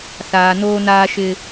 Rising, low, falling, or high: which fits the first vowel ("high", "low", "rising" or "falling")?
low